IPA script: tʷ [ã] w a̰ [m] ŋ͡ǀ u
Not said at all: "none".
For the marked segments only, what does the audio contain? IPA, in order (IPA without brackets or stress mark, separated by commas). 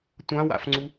ã, f